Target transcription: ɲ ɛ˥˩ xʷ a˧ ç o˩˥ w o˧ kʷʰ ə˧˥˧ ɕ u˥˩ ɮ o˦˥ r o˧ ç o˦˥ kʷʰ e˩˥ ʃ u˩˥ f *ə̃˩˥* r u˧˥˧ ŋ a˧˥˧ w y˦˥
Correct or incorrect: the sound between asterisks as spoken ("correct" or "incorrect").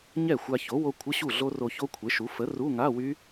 incorrect